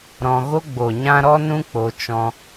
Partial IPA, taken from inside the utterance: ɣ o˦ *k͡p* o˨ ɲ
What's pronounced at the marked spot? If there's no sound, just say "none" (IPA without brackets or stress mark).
ɡ͡b